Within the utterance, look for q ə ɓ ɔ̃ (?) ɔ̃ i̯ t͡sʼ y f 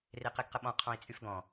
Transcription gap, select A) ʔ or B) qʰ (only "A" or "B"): B